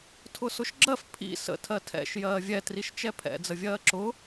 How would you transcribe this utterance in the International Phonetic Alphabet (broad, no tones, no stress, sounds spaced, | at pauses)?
tʰ ʊ s ʊ ʃ ɡ͡ǁ ɜ f pʰ ḭ s ə̰ tʰ ɜ tʰ ɛ̰ ʃ j ɜː vʲ ɛ t r i ʃ t͡ʃ ɛ pʰ ɛ̰ d͡z ə vʲ ɜː ǁ ʊ